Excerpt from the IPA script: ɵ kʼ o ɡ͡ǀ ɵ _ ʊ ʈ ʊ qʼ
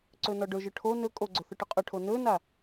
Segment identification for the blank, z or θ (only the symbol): θ